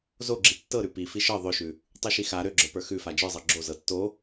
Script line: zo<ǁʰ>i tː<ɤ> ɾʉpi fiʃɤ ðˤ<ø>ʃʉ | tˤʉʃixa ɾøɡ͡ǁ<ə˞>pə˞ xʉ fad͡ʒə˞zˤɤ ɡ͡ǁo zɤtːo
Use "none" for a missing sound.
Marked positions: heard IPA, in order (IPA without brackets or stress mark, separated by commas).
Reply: ɡ͡ǁ, ɤ, ø, ə˞